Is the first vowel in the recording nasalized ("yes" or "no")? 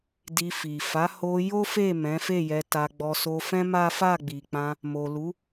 no